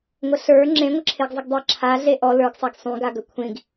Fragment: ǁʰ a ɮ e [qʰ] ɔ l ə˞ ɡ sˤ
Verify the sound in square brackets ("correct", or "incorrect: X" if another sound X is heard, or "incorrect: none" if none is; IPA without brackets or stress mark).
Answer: incorrect: ʔ